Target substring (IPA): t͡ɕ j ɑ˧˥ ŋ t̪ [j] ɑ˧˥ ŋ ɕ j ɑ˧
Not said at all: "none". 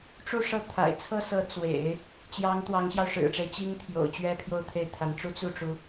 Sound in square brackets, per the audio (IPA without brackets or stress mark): w